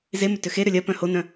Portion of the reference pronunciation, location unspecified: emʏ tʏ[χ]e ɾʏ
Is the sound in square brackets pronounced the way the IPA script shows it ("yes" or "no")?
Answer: no